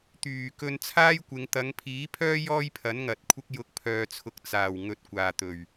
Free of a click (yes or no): yes